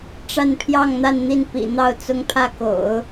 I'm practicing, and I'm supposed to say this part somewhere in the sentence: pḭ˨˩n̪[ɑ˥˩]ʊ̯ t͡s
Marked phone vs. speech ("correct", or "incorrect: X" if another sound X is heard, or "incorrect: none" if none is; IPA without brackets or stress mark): correct